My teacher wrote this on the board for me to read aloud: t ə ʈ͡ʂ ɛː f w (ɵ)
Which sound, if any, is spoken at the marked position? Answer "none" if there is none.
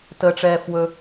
ɵ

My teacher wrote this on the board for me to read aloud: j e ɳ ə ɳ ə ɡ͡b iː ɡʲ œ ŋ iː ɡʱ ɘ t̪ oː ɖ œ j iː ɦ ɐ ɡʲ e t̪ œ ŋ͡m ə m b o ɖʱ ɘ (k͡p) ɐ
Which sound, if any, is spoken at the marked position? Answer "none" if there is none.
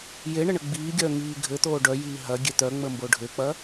k͡p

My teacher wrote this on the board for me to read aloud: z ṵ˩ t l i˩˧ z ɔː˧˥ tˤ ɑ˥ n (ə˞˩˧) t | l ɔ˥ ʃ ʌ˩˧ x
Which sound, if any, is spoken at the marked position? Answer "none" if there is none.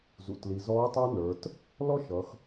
ə˞˩˧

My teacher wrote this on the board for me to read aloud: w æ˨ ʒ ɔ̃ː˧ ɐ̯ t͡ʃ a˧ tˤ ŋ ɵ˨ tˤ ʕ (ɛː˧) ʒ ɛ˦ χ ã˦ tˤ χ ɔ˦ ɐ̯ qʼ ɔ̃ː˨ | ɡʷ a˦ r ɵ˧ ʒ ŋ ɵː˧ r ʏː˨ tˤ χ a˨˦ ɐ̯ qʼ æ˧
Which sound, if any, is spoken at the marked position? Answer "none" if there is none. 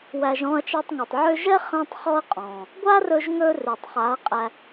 ʏː˧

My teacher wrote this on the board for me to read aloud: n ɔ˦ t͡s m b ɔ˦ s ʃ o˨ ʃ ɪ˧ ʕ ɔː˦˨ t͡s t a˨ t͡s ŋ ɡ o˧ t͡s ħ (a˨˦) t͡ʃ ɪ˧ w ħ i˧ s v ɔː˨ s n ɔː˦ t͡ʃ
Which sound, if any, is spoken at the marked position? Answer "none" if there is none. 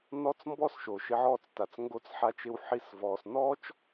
a˧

